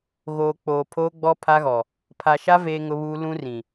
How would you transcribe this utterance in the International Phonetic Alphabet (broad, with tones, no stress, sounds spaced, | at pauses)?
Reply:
ɣ oː˨ k͡p oː˨ pʰ oː˦ ɡ͡b ɔ˦ pʰ a˦ ɣ ɔ˨ | pʰ a˨ ʃ a˦ v eː˦ ŋ ʊ˦ β uː˦ l ũ˦ r ĩ˨